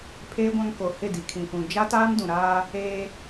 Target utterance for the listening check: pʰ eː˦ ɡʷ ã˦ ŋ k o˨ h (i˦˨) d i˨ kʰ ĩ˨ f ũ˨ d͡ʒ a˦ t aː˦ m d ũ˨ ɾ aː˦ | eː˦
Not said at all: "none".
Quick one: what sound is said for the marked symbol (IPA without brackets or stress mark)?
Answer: ɪ˦˨